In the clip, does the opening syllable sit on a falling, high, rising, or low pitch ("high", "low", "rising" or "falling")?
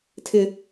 high